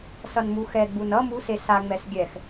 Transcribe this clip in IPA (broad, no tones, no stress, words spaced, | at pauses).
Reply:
sʌnmuxɛɡ͡bun ʌ muse saŋ͡mɛs ɡʲɛx